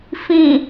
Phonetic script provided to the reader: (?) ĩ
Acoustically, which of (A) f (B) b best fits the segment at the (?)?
A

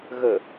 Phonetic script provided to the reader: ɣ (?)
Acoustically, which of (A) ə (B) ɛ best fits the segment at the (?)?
A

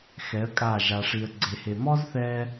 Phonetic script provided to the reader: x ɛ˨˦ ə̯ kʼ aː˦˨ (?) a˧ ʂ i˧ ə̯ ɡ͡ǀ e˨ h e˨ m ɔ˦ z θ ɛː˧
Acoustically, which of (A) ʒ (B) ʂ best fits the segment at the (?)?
A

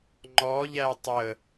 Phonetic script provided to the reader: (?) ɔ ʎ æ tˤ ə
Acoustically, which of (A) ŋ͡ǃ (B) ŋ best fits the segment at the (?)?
A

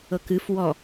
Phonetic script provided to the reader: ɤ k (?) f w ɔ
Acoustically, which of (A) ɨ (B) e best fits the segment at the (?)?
A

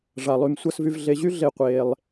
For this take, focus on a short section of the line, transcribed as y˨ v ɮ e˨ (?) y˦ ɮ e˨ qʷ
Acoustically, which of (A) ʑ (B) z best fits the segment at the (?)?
A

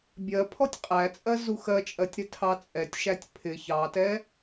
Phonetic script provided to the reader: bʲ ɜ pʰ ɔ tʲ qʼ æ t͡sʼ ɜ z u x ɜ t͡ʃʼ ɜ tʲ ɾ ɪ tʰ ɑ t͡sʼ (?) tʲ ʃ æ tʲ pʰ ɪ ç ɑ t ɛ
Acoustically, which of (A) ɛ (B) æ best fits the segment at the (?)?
A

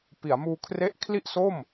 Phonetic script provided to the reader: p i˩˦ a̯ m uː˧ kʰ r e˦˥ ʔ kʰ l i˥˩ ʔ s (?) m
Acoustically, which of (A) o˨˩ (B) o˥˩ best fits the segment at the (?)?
B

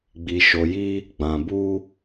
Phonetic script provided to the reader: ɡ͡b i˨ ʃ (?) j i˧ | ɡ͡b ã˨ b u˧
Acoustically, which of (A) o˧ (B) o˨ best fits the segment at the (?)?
B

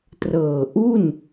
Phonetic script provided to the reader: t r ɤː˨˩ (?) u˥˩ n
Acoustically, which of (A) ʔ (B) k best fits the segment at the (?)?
A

